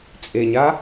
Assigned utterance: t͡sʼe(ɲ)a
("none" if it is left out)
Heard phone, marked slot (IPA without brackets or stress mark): ɲ